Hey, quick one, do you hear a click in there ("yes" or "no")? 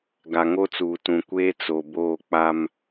no